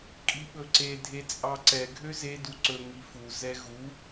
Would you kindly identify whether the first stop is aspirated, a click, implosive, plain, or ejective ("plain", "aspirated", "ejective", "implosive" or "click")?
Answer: ejective